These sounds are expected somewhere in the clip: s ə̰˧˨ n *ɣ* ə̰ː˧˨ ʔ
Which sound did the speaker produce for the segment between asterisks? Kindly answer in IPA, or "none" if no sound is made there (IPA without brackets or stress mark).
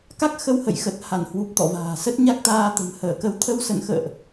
x